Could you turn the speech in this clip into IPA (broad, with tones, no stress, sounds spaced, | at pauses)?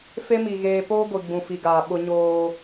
f e˦ m i˨ ɣ eː˨ p oː˦ ɡʷ i˨ ɡ͡b ũ˨ f i˨ ɡ aː˨ ɓ ʊ˦ ɲ oː˦